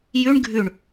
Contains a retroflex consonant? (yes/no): yes